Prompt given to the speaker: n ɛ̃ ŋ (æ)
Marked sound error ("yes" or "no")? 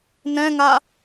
yes